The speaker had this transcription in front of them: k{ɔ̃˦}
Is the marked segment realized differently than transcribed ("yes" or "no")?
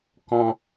no